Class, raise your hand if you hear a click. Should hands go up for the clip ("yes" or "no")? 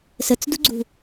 yes